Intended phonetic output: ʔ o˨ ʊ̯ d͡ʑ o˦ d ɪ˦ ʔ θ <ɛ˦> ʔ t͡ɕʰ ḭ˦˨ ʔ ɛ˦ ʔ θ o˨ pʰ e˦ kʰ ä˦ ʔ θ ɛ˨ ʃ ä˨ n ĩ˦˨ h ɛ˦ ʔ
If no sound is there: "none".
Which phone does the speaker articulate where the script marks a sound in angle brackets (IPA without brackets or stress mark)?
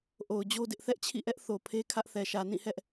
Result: ɛ˦